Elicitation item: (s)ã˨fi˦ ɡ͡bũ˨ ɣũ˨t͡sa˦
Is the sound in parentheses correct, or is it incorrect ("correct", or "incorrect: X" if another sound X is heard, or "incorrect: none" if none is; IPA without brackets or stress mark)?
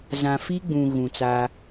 incorrect: z